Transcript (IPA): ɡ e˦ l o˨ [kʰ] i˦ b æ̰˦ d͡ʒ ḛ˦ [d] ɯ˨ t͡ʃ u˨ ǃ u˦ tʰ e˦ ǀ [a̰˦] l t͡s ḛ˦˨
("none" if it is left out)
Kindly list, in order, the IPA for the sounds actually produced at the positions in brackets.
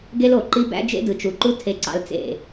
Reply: ǃ, d, ɑ̰˦

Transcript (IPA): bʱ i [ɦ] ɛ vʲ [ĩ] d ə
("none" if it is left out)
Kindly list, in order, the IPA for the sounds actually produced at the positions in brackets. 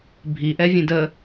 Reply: ʔ, ẽ

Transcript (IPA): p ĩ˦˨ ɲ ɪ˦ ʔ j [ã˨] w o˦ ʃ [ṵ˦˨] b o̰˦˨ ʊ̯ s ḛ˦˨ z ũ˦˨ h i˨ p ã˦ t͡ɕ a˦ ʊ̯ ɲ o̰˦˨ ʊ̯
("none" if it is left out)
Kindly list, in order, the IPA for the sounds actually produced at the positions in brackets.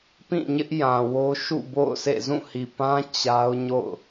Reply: ã˨, ṵ˦˨

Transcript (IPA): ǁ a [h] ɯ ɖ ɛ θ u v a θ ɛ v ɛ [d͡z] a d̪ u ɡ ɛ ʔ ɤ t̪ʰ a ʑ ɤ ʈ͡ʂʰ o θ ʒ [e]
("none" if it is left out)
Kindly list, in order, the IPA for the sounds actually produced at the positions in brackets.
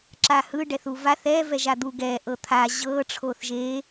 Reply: h, ʒ, e

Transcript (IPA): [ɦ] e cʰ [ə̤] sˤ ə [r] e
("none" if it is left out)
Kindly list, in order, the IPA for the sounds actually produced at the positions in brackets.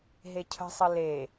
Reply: ɦ, ə̤, l

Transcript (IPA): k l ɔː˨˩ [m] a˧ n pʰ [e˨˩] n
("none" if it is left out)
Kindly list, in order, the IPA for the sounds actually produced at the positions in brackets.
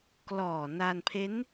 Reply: n, e˦˥

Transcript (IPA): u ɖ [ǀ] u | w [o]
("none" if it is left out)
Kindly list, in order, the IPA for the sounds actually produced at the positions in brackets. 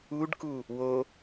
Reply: k, o

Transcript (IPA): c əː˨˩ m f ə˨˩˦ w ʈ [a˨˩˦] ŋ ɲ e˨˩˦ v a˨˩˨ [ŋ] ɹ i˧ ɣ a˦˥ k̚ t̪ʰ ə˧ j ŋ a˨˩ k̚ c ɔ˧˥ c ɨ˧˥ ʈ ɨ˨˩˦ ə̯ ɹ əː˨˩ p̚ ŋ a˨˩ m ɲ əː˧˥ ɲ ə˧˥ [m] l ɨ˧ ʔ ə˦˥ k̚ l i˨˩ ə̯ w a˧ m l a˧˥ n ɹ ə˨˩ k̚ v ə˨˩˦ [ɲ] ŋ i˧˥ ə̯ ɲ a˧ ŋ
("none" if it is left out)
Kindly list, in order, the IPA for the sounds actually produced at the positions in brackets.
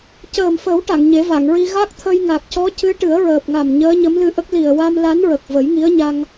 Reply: a˨˩˨, ŋ, m, j

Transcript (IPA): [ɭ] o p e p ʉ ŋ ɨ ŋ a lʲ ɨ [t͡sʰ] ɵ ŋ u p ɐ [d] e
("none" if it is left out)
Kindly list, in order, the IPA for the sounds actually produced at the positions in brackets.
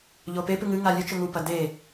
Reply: ʎ, t͡ʃ, d

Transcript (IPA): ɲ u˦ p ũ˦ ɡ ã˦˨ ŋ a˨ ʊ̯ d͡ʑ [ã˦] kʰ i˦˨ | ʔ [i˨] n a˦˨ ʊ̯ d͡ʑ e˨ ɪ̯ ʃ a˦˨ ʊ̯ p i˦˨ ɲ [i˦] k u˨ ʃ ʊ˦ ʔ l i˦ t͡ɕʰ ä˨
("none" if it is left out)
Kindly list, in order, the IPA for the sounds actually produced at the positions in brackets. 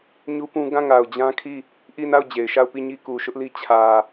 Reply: ã˦, i˦˨, i˦

